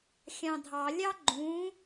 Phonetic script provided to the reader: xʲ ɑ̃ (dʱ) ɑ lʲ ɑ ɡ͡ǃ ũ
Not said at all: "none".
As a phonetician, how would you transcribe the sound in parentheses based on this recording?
dʱ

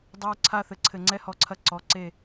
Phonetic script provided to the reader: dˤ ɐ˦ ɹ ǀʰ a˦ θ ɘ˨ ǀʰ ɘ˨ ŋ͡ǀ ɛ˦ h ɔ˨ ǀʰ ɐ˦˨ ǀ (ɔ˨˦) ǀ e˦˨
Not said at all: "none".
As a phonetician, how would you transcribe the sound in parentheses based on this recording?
ɔ˨˦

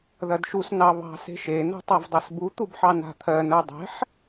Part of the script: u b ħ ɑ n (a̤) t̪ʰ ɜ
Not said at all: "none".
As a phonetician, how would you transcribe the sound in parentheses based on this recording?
a̤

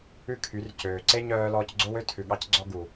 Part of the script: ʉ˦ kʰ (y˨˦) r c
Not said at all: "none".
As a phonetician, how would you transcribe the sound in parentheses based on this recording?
y˨˦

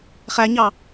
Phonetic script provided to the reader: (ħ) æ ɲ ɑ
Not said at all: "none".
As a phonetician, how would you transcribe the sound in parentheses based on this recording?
χ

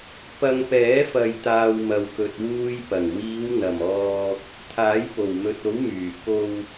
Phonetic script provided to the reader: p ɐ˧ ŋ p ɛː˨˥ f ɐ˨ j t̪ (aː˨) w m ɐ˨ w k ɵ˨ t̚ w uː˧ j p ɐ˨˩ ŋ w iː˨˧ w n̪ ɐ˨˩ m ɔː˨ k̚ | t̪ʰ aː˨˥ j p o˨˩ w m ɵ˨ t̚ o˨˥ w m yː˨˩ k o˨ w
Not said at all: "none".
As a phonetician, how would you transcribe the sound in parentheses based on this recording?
aː˨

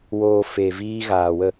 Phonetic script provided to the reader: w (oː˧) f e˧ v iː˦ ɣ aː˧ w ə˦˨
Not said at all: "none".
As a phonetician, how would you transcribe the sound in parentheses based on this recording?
oː˧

